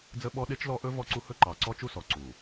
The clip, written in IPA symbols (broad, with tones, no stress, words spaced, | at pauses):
d͡zə˦ɓɔ˦ ɗe˦t͡ʃlɔ˦ʔɵ˦ vɔ˦ǀu˦hɵ˦ ǃɑ˨ǀɔ˦t͡ʃu˦sɔ˨ ǀu˨